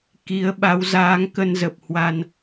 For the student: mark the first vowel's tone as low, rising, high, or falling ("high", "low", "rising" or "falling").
rising